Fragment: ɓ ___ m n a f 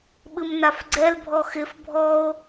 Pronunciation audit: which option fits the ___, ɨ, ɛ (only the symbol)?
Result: ɨ